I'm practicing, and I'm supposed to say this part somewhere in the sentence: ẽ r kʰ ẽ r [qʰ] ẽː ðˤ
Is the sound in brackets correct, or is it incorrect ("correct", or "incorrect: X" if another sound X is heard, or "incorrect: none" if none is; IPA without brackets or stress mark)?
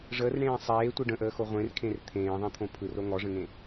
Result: incorrect: t̪ʰ